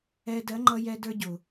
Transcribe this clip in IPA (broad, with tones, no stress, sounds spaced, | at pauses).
ɛ˧ d ɜ˨˦ ŋ͡ǃ ʌ˧ j ɛ˧ d ə˞˧ ɟ ʊ˨